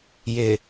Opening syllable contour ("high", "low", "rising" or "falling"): low